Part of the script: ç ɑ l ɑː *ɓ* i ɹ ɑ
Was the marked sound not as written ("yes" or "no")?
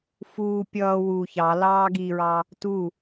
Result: yes